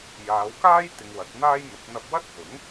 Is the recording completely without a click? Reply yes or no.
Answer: yes